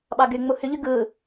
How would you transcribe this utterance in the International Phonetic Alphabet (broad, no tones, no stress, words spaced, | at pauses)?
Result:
ɓɑɡy ŋ͡muhyʎy ɡɯː